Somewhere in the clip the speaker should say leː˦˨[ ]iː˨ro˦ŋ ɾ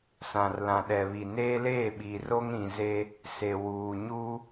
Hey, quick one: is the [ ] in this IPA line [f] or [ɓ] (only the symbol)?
ɓ